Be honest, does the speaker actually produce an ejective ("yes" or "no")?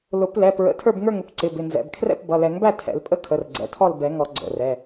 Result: yes